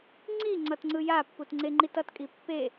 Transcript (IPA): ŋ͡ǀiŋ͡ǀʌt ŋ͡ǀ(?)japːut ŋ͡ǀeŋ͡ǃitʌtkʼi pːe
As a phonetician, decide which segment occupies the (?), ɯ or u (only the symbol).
ɯ